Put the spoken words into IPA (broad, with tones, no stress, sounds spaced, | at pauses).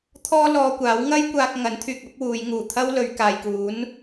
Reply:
t̪ʰ ɔː˥ l ɔː˧ kʷ aː˨˥ w ŋ ɐ˥ j kʷ aː˧ k̚ ŋ ɐ˨˥ n t̪ʰ yː˨ k̚ ɐ˨˥ p̚ w uː˨˧ j ŋ uː˨˩ t̪ʰ ɐ˥ w l ɵ˨˧ ɥ k aː˨ j k uː˨˥ n